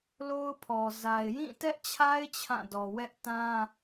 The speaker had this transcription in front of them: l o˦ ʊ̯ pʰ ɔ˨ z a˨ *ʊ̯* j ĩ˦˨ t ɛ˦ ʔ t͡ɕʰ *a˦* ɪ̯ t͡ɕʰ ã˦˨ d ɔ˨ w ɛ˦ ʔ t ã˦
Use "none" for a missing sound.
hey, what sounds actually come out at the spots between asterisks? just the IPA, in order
ɪ̯, a˦

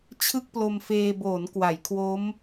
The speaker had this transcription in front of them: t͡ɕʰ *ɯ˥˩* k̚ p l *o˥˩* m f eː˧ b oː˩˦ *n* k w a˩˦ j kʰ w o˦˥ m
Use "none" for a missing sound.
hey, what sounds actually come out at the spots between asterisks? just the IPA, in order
ɯ˥˩, o˧, n

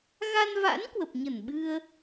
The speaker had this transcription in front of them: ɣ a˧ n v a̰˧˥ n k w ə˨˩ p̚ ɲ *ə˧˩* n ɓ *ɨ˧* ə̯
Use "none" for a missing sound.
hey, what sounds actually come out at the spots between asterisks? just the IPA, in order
ə˧˩, ɨ˧

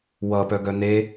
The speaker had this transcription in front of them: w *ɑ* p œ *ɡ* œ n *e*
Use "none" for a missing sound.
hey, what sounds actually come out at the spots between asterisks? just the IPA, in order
ʌ, ɡ, e

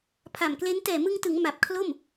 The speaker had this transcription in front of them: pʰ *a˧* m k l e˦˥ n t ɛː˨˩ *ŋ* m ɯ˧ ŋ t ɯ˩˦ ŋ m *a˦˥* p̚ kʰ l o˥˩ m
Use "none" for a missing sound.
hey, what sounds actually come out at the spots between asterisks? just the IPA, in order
a˨˩, none, a˨˩

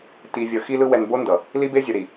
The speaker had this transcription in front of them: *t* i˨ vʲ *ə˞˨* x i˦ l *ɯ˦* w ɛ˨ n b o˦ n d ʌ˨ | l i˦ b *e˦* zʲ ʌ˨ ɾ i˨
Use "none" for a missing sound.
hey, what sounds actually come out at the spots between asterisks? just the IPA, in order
t, ʌ˨, ɯ˦, e˦

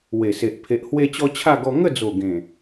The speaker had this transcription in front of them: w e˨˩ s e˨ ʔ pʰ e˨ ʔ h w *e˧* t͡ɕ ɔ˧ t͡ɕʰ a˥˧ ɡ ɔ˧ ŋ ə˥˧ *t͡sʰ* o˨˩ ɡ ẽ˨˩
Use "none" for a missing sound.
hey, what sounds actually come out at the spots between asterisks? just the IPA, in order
e˧, d͡z

